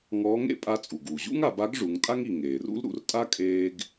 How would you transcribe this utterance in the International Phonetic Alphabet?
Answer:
ŋɔː˧˥ŋḛ˥pʼa˧˥ t͡sʼu˩ɡuː˩ʑṵ˥ŋa˩˧ ba˧˥ɡ ʐu˩˧ŋtʼa˥ŋi˩ ŋeː˩rṵ˥l ɾṵ˩˧rtʼa˥ kʼeː˧ɡ

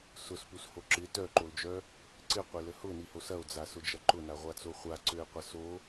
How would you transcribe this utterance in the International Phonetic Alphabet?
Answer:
sʊspusho ǁɪ tœǃold͡ʒœ | ǀɪqʷɪlə hʊniho sɐo̯d͡zasʊd͡ʒɐ ǃʊnaʁʷat͡so χʷaǀøe̯qʷɐ so

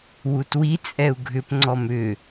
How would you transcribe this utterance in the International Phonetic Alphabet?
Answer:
wutwi t͡sʼɛu̯ɡʱʏp ŋ͡ǀɔmʏ

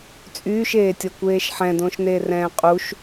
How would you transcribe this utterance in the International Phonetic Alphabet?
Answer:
t͡sʼyːʃeːtʲɔkʷeːʃ ħɛ̃dõʃ neːrɛ̃ːqʼuʃ

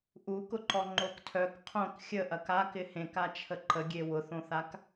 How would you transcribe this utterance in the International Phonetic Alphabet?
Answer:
ʔukʊǃɔ ŋ͡ǃoktʰœk qʰõk xʲəʔɐk a kɪhẽkat͡ʃʰə ǃəɡʲe wʊθõθak

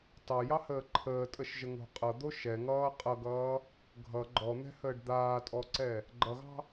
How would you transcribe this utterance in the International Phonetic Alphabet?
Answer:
tɑjɑhəː ǃʰəːtʼəʃʒəŋo̤ qʼʌd̪o ʃɛŋʌː qʼʌɡʌː | ɡʱʌ ɡ͡ǃɔn̪ɛ̤həːɖ d̪aːtʼɔǀɛ | ɡ͡ǃʌɣɑ̤

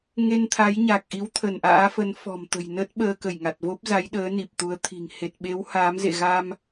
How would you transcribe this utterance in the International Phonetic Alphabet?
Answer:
ŋe˧nt̪ʰa˨˦jɲa˨˩k̚ʔi˨˦w t̪ʰə˧˩nʔa̰ː˧˥fə˨˦n fɔ̤˨˩mt̪ə̤˨˩jnə˦˥t̚ ɓəː˧kə˧˩jŋa˨˩t̚vo˦˥p̚ za˨˦jɗəː˨˦ ni˨˩p̚t̪u˨˦ə̯t̪ʰi̤˨˩ŋ he˨˩t̚ɓe˨˦w haː˨˦mzḛ˧˨ɣa˧m

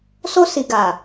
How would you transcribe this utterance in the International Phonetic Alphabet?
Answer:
so˧si˨ɡa˨

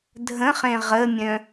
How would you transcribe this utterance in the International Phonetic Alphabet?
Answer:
dʱə̃χẽ ʁəmʲœ̃

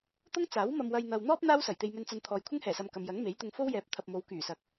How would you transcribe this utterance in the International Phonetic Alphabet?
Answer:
t̪ʊ˥ŋt͡saː˨˥wmɐ˧m wɐ˧j n̪ɐ˧w n̪ɔː˥p̚ n̪aː˥wsɐ˨˩j t̪e˧jmɵ˧nt͡sɐ˧nt̪ʰɔː˨j kʷʰɪ˥ŋhɛː˨˩sɐ˨m kɐ˨mjɐ˨˥ŋme˨˥jt̪ʊ˧ŋ fo˥wjɛː˨˥p̚t̪ʰɐ˨p̚mo˨˧w kyː˨˩sɐ˨k̚

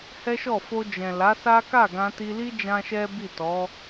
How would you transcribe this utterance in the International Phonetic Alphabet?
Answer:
hɛ˦ʃɔ˦˨ fo˧ d͡ʒɛ̃˨la˨˦ sa˦ ka˦˨ɡã˧ti˧li˦ d͡ʒã˦ʃɛ˦ bi˦˨tɔ˨˦

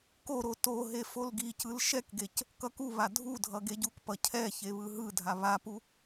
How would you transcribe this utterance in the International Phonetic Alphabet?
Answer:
koɾo toɦe folɡicɯl ʃɛkɡec | kʌkuβa dʱu dʱʌɡeɟukpʌ cʰɛ çeβɯɦɯdʱa βapu

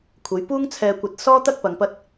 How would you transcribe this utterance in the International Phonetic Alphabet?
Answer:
kʷʰɐ˨˧j puː˥ŋ t͡sʰɛː˧kʷɐ˧t̚ sɔː˥ t̪ɐ˥k̚pɐ˨ŋpɐ˧t̚

